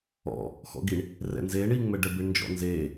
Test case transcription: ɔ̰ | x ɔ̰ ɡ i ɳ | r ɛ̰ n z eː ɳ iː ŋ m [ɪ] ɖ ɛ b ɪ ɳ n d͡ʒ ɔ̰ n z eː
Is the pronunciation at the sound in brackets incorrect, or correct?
incorrect: ɛ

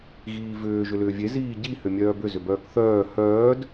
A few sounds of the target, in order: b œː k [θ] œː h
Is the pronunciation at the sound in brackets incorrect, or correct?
correct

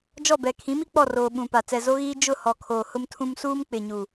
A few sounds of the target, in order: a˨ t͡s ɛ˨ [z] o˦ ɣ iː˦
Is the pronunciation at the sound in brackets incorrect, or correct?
correct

